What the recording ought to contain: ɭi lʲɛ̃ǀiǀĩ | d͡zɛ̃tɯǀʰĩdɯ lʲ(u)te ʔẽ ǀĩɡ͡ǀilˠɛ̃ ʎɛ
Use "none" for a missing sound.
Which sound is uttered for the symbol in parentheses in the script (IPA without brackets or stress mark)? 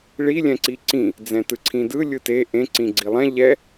ɯ